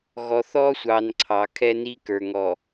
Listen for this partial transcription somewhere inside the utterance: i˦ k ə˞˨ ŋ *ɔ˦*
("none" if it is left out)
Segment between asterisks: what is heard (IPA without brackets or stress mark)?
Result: ɔ˨